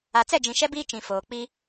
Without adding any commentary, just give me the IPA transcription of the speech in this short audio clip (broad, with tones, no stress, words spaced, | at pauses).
a˨t͡sɛ˦˨d͡ʒĩ˨ ʃɛ˦biː˦ t͡ʃĩ˨foː˨ k͡pi˦